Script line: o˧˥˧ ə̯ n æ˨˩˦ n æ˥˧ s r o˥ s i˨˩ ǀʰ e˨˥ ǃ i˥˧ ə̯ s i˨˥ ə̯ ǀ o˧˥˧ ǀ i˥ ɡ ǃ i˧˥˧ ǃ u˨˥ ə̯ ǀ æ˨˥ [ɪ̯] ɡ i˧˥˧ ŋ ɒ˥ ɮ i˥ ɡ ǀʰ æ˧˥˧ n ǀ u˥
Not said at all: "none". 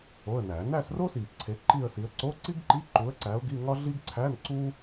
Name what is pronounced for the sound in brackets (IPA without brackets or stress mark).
ʊ̯